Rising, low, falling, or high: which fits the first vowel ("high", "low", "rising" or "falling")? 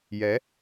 rising